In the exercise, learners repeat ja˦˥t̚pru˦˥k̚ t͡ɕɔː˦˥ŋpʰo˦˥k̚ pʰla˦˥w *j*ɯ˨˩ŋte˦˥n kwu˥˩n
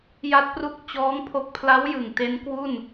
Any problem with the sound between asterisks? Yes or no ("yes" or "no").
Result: no